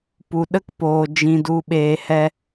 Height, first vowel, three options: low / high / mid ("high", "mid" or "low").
high